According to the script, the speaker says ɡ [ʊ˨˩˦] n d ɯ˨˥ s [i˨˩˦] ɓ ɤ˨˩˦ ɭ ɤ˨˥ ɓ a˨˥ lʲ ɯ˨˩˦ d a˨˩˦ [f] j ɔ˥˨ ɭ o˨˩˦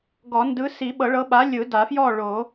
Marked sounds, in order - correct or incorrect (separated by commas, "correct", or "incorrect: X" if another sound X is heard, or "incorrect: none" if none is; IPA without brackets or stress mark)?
incorrect: ɔ˨˩˦, correct, correct